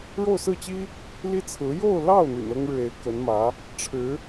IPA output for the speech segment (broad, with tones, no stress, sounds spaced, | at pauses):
ɻ o˥˧ ʊ̯ s ɹ̩˥˩ t͡ɕ i˥ | l i˥ t͡sʰ ɹ̩˧˥ j o˥˧ ʊ̯ l ɑ˥˩ ʊ̯ n̪ y̰˨˩ n ɤ˥ ŋ ɻ ɻ̩˨ e˧˥ ɪ̯ k ə˧˥ n m ä˧˥ | ʈ͡ʂʰ ɻ̩˧˥